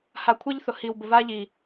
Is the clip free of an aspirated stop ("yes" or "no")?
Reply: no